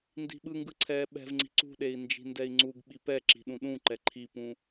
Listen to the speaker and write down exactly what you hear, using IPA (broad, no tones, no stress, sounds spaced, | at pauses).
n d i̤ ɓ ɯ ŋ ɡ ɯ ǀʰ ɛː ɓ ɛ̤ v ŋ͡ǀ i̤ ǀ ṳ ɗ e i̯ n d͡ʒ i̤ n d ɛ i̯ ŋ͡ǀ u ɡ ɓ i p ɛ ǁ i̤ ɗ ũ ɗ ũ ǃ ɛ ǃʰ i p ũ